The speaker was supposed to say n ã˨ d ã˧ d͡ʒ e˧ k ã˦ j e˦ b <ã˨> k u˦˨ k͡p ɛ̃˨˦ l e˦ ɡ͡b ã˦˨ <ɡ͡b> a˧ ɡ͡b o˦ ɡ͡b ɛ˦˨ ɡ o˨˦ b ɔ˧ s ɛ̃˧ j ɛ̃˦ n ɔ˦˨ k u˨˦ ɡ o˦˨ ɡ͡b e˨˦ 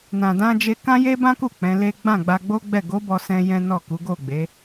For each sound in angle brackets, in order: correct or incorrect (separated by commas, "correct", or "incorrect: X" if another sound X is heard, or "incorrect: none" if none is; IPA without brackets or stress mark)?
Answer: incorrect: ã˦, correct